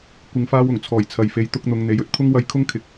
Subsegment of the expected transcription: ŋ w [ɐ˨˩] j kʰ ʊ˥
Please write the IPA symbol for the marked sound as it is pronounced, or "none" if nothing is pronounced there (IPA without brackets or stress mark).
ɐ˧